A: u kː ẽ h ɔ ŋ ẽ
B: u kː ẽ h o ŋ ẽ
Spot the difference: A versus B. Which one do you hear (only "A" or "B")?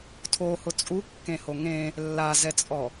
B